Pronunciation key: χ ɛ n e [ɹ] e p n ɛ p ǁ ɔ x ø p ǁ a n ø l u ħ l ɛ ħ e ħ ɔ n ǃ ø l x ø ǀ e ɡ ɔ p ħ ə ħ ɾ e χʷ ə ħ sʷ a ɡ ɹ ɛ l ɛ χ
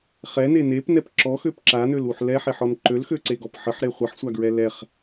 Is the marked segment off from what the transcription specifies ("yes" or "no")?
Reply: yes